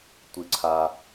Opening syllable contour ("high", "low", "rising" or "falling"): low